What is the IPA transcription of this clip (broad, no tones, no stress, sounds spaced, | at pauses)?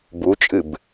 b u t͡ʃʼ ɨ b